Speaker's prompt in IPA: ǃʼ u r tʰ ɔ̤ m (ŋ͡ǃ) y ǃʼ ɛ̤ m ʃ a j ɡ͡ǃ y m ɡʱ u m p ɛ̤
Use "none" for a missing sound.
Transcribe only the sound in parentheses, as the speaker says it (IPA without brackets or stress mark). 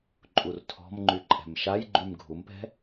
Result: ŋ͡ǃ